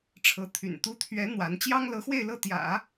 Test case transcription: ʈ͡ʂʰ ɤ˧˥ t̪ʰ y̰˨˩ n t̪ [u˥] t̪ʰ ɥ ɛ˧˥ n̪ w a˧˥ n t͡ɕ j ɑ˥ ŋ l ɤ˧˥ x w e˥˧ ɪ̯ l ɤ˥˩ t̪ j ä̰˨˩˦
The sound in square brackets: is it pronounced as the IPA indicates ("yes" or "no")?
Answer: yes